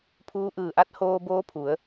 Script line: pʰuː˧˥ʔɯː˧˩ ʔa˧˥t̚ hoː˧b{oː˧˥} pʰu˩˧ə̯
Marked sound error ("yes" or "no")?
no